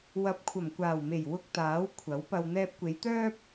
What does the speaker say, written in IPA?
w ɐ˨˥ p̚ kʷʰ ɐ˨˩ m kʷ aː˨˩ w m e˨˩ j w ʊ˧ k̚ t̪ aː˨˥ w kʷʰ ɐ˨˥ w p ɐ˧ w n̪ ɛː˧ p̚ kʷ e˨˧ j t̪ œː˥ p̚

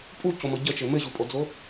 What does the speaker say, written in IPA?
pʼ u c o m ɤ ɟ ə t͡ʃ ɘ m ɘ ʑ u pʼ o d͡z o

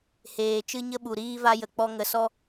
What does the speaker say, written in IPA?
h eː˨ t͡ʃ ɨ˧ ɲ ə˧ ɓ u˨ ɾ iː˧ v a˧ j ə˨ k͡p ɔ˧ ŋ ə˧ s ɔ˦

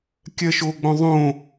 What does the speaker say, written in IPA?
kʲ ɜ ʃ o ɡ͡b õ ðˤ õ

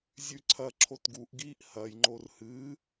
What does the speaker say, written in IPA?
zʲ ʉ ǀʰ ɐ ǁʰ o t ɡ u ʔ ɡ iː ʔ h ɐ j ŋ͡ǃ o r h ɨ

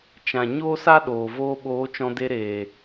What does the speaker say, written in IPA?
t͡ʃ ã˨ ɲ oː˦ s a˦ ɗ oː˨ v oː˧ ɓ oː˨˦ t͡ʃ ɔ̃˧ d e˧ ɾ eː˨

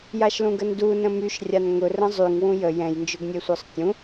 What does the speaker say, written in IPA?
j a ʃ l ũ ɡ ə n d u n ə̃ m y ʃ rʲ a n ŋ ʊ r ə̃ zˤ y ŋ w ũ j ə j ɛ̃ j n d͡ʒ ʊ ɡ nʲ e sʷ ə˞ sˤ tʲ ũ

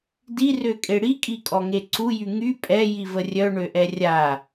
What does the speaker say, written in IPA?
d i r ø kʼ e ɽ i kʼ i kʼ ɔ ŋ e ǀ u j y ŋ y pʼ ɛ j i v ə rʲ œ ɳ ø ʔ ɛ rʲ a

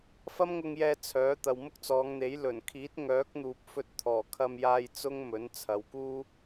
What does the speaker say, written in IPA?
f ɐ˥ m ŋ ʊ˧ ŋ j ɛː˧ t͡sʰ œː˨˥ t̪ ɐ˨ w m ʊ˥ k̚ t͡s ɔː˨˧ ŋ n̪ e˨˥ j l ɵ˨˩ n kʰ iː˨˥ t̚ ŋ œː˨˥ k̚ n̪ uː˨ p̚ f ɵ˧ t̚ t̪ʰ ɔː˨˩ kʰ ɐ˧ m j aː˧ j t͡s ʊ˥ ŋ m ɵ˨˥ n t͡sʰ ɐ˨˧ w k uː˥

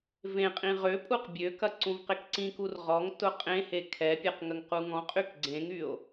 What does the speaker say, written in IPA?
v ẽ qʼ ĩ ʁ ø pʼ u q bʲ ø k ɐ ǀ ũ v q ɪ k ǀ ĩ k u r ʁ ɔ ŋ t ʊ qʼ ẽ h e kʰ ɛ pʲ ɐ q ŋ ə ŋ q u ŋ ɔ̃ qʼ y k ɡ͡ǀ ẽ ŋ y o̯

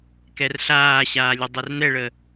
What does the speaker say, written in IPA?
k ɛ r ɬ aː ɕ aː lʲ ø dˤ ɛ r n̪ ɛ ɭ ə

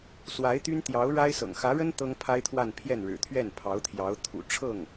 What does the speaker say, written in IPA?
s w a˧˥ ɪ̯ t̪ y˥ n t̪ j ɑ˧˥ ʊ̯ ɻ a˥ ɪ̯ s ɤ̰˨˩ ŋ x ä˧˥ ɻ ə˥ n t̪ ɤ˥ ŋ pʰ a˥ ɪ̯ t̪ʰ w a˥˧ n pʰ j ɛ˥˩ n ɻ ɻ̩˨˩ t̪ʰ ɥ ɛ˥˩ n pʰ ɑ˧˥ ʊ̯ t̪ʰ j ɑ˧˥ ʊ̯ t̪ʰ ṵ˨˩ ʈ͡ʂʰ ɤ˥˩ ŋ

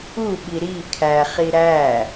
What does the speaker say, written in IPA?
u ɓ i ɾ i kʰ æ χ i ɾ æ

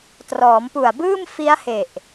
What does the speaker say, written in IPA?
t r ɔː˩˦ m p u˨˩ a̯ b ɯː˥˩ m f i˦˥ a̯ h e˨˩ ʔ

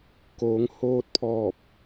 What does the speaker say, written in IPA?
k oː˩˧ ŋ h oː˧ t̚ pʰ ɔː˧˩ p̚

